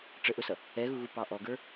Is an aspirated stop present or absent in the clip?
absent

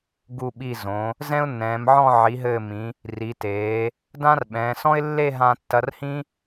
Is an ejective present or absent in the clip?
absent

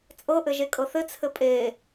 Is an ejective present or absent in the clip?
present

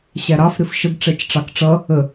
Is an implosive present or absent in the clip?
absent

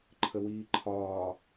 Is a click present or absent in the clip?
present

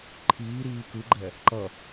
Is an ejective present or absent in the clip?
absent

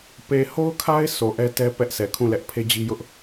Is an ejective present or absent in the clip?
absent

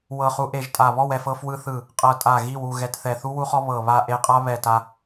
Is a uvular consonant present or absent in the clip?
present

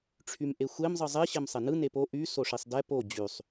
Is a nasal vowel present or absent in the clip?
absent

